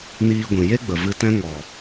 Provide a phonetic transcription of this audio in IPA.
niː˧ɡʷĩ˨ je˦ɡ͡bə˨ vɨ˧tɛ̃˦ ŋɔ˨

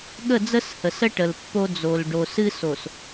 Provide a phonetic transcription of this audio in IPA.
ɠə˦˨d͡zə˦s hə˨sə˦ ʈə˨lpːo˦ d͡zo˨l ɖo˨sɨ˦ so˨s

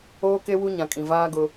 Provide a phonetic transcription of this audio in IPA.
oː˦ke˦wu˦ ɲã˨kʼĩ˨ vaː˦ɡʊ˦

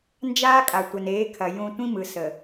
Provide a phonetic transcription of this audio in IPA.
nd͡ʒaː˦kʼa˨ tʷɐ˨neː˨˦kʰɐ˨ jũ˦ tʷĩ˦mɯ˨ sə˨

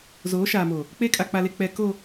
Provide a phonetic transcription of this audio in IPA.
zoː˨˦ʃaː˨mo˨ | k͡pe˦ kʼa˨k͡pa˨le˨ k͡pɛ˨ ko˨

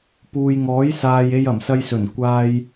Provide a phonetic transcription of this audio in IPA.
puː˨jŋɔː˨˥j saː˧j e˧jɐ˨˩msɐ˧jsɵ˨˩n kʷaː˧j

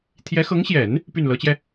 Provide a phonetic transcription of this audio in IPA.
t̪ʰjɛ˧˥xɤ˧˥ŋɕjɛ˨˩˦n | py˥˩nlɤ˧˥t͡ɕjɛ˧

